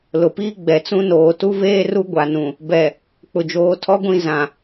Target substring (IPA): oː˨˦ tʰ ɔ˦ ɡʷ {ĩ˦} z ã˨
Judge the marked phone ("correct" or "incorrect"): incorrect